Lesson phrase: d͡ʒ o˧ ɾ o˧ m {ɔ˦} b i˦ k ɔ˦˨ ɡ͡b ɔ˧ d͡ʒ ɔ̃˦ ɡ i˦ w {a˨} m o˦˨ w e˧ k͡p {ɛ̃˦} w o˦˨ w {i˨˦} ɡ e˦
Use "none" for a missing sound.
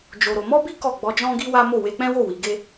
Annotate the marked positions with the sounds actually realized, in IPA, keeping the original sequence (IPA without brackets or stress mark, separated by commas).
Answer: ɔ˦, a˦, ɛ̃˦, i˨˦